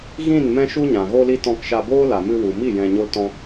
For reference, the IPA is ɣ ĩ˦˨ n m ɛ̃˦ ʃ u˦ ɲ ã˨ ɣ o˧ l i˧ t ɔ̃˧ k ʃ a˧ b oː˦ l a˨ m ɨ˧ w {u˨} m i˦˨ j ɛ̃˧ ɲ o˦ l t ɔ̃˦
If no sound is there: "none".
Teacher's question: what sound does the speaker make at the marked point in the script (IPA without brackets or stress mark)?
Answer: u˨